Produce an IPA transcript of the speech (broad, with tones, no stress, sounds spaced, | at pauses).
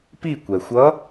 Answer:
p i˦˨ kʷ ɛ˩ xʷ ʌ˧˥